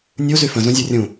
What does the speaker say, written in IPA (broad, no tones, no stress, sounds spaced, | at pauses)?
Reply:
nʲ u z y f ə̃ z ũ zʲ o rʲ ũ